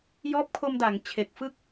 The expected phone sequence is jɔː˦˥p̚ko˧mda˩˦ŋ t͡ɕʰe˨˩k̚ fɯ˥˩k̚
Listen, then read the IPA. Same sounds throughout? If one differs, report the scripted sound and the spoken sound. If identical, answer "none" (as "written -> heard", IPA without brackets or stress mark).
k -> kʰ